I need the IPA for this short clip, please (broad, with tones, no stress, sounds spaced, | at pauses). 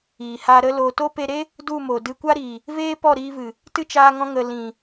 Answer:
iː˨ h aː˧ ɾ ə˦ l o˧ t o˦ p e˧ ɾ e˦ | d u˦˨ m o˨ d ɨ˧ kʷ a˦ ɾ iː˨ | v eː˦ p ɔ˦˨ ɾ iː˧ v ɨ˨ | t ɨ˦ t͡ʃ aː˧ ŋ ɔ̃˧ ŋ ə˨ l ĩ˨